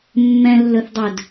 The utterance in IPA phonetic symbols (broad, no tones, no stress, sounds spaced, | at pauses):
mː ɛ̃ lː ɵ θ dˤ ɵ d